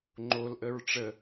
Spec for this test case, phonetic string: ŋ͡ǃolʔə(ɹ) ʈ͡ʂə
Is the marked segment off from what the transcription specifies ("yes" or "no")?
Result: no